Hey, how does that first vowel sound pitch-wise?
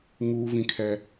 high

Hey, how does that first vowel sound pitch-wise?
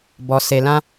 low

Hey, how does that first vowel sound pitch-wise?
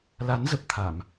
rising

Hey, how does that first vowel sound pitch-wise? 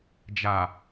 low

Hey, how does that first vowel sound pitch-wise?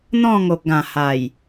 falling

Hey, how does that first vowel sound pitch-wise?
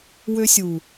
high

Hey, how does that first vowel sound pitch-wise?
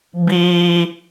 high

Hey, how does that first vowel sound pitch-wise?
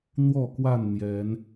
falling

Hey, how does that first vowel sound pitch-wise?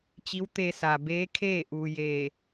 rising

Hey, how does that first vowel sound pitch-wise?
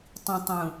low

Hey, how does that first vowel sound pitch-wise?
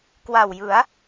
low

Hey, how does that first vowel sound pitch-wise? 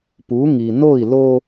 rising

